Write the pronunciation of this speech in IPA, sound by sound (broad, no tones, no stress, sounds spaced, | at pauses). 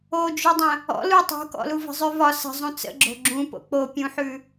o d͡ʒ ʉ dˤ ə̃ | ɔ̰ l u tˤ o̤ k ɔ̰ l u v ə̤ zˤ ʉ v ɒ s ə̤ zˤ ũ t͡s ə̰ ɡ͡ǁ o̤ ɡ͡ǁ ũ p o̰ k͡p o pʲ ũ ħ ʉ